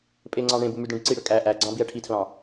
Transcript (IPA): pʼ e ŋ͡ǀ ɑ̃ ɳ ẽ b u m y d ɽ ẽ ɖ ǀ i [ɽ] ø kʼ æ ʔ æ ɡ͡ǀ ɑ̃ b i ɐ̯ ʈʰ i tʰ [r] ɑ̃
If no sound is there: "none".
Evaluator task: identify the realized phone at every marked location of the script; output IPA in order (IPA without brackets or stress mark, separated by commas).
ɽ, l